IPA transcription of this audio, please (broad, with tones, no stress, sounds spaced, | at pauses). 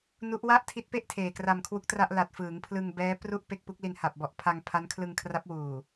n u˦˥ ʔ w a˥˩ ʔ tʰ i˦˥ t̚ p e˥˩ ʔ tʰ eː˨˩ k r a˧ m kʰ w u˦˥ k̚ t r a˥˩ ʔ l a˨˩ t̚ f ɯː˩˦ ŋ pʰ l ɯ˧ ŋ b ɛː˦˥ p r u˥˩ ʔ p e˥˩ k̚ p u˦˥ k̚ l i˧ n h a˨˩ p̚ b ɔ˨˩ ʔ pʰ a˧ ŋ pʰ a˦˥ n kʰ l ɯ˧ ŋ kʰ r a˦˥ p̚ w uː˨˩